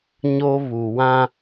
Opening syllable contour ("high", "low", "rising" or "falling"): high